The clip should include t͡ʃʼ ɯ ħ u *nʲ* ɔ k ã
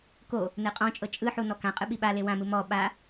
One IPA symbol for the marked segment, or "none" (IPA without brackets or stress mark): n